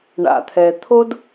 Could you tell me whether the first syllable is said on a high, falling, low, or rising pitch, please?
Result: low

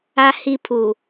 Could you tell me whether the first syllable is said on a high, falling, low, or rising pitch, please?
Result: high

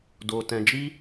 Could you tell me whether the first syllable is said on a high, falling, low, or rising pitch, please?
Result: low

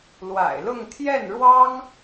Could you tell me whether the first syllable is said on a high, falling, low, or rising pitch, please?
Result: low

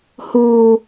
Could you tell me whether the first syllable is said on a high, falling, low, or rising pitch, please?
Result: high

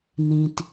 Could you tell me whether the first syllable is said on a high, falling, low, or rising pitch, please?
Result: low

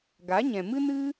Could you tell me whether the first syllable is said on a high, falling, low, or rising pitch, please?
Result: rising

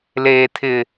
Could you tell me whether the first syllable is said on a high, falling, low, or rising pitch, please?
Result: low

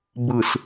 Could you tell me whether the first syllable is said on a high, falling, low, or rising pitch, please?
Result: low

